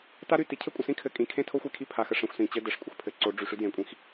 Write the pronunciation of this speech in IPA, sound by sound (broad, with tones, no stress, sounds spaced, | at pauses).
t a˦ ɾ y˨ t i˨ cʰ ɘ˦ kʷʼ ə˨ s ĩ˦ kʰ ɘ˨ kʼ ĩ˨ kʰ ẽ˦ tʰ o˦ xʷ e˦˨ kʰ i˦ pʰ a˨ x ə˨ ʂ ẽ˨ xʷ s ĩ˨ t͡ɕ ɘ˦ d ɘ˨ ʂ kʷʼ ə˨ x pʰ ɘ˨ ǀ o˨˦ ɖ͡ʐ y˨ ʂ y˦ d j ẽ˨ kʷʼ ĩ˦ x